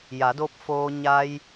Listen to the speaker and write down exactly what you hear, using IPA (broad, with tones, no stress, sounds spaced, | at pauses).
j a˩˧ d o˧ p̚ f oː˧ ɲ a˧ j